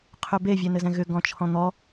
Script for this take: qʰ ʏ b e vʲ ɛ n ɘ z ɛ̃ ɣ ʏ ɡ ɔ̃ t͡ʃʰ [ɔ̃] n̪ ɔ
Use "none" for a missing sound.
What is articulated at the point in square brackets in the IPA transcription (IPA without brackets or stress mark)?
ɔ̃